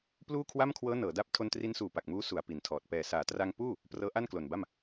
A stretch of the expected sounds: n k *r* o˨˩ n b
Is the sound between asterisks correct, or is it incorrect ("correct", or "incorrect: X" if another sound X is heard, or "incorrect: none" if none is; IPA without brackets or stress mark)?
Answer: incorrect: l